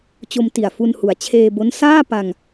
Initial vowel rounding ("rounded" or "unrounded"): rounded